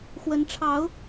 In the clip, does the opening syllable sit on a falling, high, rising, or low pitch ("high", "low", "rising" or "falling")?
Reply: rising